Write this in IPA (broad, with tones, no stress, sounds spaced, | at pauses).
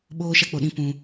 ɓ oː˧ ʃ a˧ k͡p o˨ ɗ ĩ˧ p ũ˧